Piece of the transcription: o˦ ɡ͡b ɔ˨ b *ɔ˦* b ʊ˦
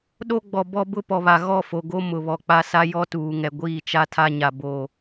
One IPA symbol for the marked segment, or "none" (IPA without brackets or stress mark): ɔ˦